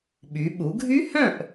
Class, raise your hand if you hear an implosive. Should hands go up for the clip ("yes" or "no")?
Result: yes